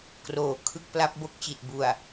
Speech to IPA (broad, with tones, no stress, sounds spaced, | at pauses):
k r oː˩˦ kʰ ɯ˥˩ k̚ p l a˦˥ p̚ b o˥˩ k̚ t͡ɕ i˨˩ t̚ b u˨˩ a̯